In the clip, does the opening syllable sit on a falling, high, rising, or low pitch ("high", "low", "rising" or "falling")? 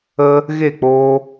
high